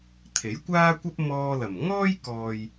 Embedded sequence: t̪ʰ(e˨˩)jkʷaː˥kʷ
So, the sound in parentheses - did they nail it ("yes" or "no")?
no